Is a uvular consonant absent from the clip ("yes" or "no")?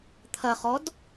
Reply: no